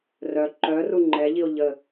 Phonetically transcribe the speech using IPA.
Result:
r œ ǃ œ r u ŋ͡ǃ ɛ ʎ i o̯ ʎ ə

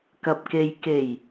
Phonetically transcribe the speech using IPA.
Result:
k ɐ˨ p̚ k e˨ j k e˨˩ j

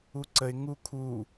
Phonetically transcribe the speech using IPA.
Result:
u ǀ ə ɪ̯ ŋ u kʰ u

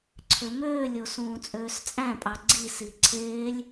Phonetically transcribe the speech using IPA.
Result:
ǀʰ ø m øː lʲ o s ũː t͡sʼ øː s t͡sʼ æ̃ pʼ ɑ ɡ͡ǀ i s i ǀʰ eː lʲ

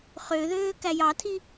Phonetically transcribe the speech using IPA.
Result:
χ ø ð øː k æ j ɑ tʰ i

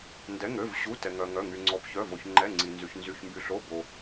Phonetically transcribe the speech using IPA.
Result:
n d ɛ˧˥˧ ŋ ø˧˥˧ v ɕ u˧˥˧ t ɛ˧ ŋ œ˧ ŋ œ˧˥˧ ŋ y˧ ŋ͡ǀ ɔ˧ b ç œ˧˥˧ v o˧ ç ŋ͡ǃ ɛ˧˥˧ ŋ͡ǀ i˧ n z y˧ ç n z y˧˥˧ ç m b y˧ ɬ o˧˥˧ b o˧

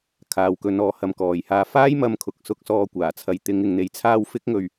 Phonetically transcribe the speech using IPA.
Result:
kʰ aː˨ w k ɵ˨˧ n ɔː˨˧ h ɐ˨˧ m k ɔː˨ j h aː˧ f aː˥ j m ɐ˧ m kʰ ʊ˨ k̚ s ʊ˧ k̚ s ɔː˧ kʷ aː˨˩ t͡sʰ ɐ˨˧ j t̪ ɪ˨˧ ŋ ɪ˨ ŋ n̪ e˨˥ j t͡sʰ aː˧ w f ɪ˥ k̚ ŋ ɵ˧ ɥ

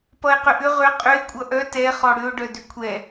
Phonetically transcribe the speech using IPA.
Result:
p ʌ e̯ q ʏ ʔ ʏ ʁ ʏ qʼ ʏ e̯ kʷʼ ʌ ʔ œ t ɛ χ ɔ ɽ ʏ o̯ ɖ œ d ʏ kʷʰ ɛ

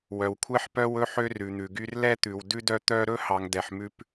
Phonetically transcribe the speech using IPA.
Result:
w œ˨ w kʷʰ ɛ˦ ħ p œ˦ w ɵ˦ ħ ø˦ r ʉ˨ n̪ ʉ˨ ɡ y˦ r l ɛ˦ t̪ ʉ˨ w d ʉ˦ d œ˦ t̪ œ˦ ɾ ɵ˦ h ɑ˨ ŋ d ɛ˨ ħ m ʉ˦ p

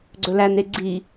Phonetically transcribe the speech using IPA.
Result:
ɡ͡ǀ ɵ l æ n e ɡ͡ǀ i

